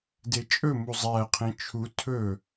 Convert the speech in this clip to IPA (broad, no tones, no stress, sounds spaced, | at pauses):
d e t͡ʃʼ ɵ m u zˤ æ qʰ ẽ t͡ʃʰ u tʰ ɵ